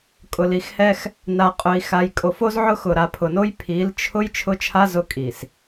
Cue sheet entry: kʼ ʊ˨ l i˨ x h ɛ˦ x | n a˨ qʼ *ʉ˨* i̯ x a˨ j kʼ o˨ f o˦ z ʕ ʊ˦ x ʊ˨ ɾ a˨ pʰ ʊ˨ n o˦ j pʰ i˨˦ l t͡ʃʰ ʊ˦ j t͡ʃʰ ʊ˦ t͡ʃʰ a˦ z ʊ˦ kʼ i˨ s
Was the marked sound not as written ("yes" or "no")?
yes